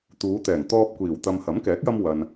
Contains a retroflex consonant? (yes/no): no